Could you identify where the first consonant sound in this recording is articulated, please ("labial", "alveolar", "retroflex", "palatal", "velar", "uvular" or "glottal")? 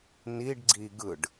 alveolar